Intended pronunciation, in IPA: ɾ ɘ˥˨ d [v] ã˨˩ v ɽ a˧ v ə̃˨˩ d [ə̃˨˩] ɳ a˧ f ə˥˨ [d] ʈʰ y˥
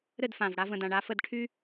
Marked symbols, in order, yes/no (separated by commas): no, no, yes